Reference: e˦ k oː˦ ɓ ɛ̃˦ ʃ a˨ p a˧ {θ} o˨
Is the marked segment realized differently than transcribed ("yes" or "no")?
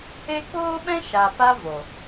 yes